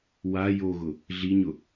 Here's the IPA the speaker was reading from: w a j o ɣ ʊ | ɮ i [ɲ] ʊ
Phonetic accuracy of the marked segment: correct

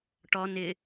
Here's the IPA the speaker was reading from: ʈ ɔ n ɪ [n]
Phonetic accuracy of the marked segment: incorrect: none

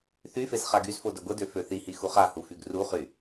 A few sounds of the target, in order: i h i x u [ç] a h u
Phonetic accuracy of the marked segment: incorrect: χ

